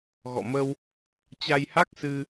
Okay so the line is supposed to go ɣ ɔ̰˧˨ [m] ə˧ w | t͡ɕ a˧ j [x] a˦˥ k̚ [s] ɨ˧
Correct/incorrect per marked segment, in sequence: correct, incorrect: h, correct

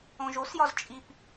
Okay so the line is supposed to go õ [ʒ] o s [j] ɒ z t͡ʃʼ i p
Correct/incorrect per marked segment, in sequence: correct, correct

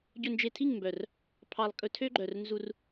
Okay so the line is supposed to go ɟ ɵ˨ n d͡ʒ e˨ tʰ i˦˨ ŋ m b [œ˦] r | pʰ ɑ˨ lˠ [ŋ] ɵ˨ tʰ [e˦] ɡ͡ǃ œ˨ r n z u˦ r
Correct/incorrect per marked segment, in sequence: incorrect: œ˨, incorrect: kʼ, incorrect: ø˦

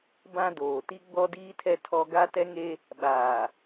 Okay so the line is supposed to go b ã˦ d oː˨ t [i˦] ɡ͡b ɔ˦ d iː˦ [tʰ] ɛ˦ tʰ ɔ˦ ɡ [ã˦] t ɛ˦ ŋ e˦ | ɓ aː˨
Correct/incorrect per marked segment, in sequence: correct, correct, incorrect: a˦

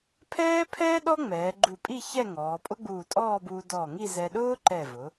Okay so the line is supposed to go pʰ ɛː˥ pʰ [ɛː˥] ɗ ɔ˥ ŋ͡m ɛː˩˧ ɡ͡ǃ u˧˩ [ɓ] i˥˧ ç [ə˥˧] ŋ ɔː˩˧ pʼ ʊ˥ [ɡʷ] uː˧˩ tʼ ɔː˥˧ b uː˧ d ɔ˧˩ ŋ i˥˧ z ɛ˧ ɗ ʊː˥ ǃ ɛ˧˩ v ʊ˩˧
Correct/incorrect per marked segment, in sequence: correct, incorrect: pʼ, incorrect: ɛ˥˧, incorrect: ɡ͡b

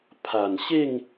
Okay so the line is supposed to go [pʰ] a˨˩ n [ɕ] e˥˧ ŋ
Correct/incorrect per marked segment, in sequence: correct, correct

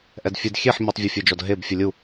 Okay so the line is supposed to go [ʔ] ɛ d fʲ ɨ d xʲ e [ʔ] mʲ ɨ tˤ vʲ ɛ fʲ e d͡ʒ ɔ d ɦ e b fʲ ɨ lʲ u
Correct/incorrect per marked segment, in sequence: correct, incorrect: ħ

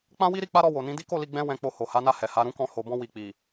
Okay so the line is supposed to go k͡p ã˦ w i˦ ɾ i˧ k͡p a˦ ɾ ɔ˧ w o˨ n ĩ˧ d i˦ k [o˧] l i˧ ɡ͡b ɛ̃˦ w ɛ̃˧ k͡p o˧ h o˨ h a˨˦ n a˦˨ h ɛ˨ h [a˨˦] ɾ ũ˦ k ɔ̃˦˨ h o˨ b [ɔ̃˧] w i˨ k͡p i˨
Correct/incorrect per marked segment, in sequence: incorrect: o˦˨, correct, correct

